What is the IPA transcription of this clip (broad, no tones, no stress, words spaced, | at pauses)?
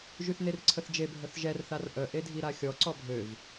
ʒyθnerǀʰəθd͡ʒe bʱœθʒɛr θarʔœ ʔedʱiɾaxʲɔ ǀɔbʱøv